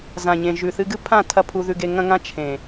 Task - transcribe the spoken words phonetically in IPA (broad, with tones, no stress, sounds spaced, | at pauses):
z ã˨ ɲ ẽ˨ ʒ ʉ˨ θ ɨ˧ ɡ ɨ˦ pʰ ã˦˨ tʰ ɐ˦ pʰ u˧ ð ʉ˧ ɡ e˧ ŋ ɐ̃˦ ŋ ã˦ t͡ʃʰ ẽ˨